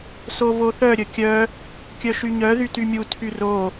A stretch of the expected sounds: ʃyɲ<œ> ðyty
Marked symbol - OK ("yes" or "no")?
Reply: yes